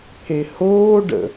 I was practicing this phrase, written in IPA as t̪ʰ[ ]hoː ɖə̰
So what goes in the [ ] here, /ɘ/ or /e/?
e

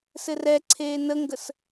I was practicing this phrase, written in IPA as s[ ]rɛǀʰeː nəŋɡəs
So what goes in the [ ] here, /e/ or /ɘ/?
ɘ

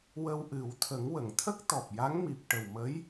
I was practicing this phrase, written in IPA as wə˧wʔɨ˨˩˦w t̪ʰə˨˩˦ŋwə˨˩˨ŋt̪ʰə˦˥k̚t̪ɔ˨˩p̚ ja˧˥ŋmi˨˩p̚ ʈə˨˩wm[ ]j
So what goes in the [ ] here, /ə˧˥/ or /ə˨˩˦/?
ə˧˥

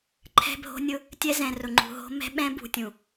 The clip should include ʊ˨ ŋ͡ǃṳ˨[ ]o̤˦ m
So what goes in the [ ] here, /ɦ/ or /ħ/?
ɦ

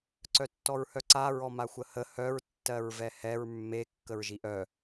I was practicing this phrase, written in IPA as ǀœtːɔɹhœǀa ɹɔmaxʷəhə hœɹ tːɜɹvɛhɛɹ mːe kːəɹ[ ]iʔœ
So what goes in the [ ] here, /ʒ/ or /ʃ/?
ʒ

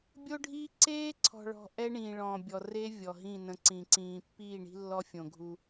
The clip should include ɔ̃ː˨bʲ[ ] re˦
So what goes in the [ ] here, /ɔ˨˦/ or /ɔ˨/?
ɔ˨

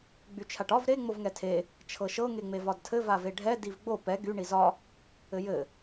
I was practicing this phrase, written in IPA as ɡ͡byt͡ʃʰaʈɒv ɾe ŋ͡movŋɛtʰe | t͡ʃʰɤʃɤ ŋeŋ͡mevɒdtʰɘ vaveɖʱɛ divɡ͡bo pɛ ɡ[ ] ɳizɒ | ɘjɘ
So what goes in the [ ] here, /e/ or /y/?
y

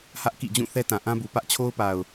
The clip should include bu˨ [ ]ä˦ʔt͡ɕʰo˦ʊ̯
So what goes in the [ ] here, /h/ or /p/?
p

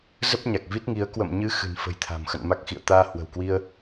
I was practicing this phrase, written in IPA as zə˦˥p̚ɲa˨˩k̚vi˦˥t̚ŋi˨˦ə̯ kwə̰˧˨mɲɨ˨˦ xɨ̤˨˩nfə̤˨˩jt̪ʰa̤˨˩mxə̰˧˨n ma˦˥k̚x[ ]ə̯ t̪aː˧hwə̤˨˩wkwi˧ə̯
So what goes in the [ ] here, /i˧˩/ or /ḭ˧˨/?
ḭ˧˨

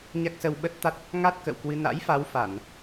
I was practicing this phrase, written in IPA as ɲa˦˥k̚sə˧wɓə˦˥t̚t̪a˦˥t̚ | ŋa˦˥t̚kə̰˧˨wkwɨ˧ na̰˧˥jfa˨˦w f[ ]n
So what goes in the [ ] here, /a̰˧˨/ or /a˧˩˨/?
a˧˩˨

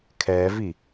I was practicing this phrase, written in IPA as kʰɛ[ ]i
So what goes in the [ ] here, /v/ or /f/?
v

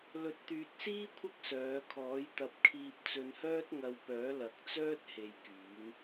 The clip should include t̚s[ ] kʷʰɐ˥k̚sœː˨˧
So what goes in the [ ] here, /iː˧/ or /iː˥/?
iː˥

